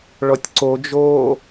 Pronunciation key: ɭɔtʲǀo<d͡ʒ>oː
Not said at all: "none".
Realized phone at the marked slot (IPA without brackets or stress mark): d͡ʒ